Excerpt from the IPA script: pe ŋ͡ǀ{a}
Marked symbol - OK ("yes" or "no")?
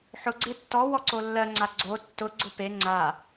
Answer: yes